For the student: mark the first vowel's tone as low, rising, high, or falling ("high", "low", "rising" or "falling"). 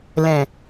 low